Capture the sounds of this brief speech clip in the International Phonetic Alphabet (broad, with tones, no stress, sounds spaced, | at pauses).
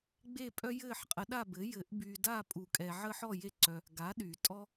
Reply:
ɡ͡b e˦˨ pʼ œ˦ j ɘː˦˨ ħ qʼ ə˨˩˦ ɗ a˦˨ b ɘ˩˥ j ɘ˨˩˦ ʔ b y˨ d a˦˨ pʼ u˨˩˦ kʼ ɛ˨ ʕ əː˦ ħ ɔ˦˨ j e˦˨ ǀ œ˨ | ɡ a˩˥ ɗ y˨˩˦ tʼ ɔ˦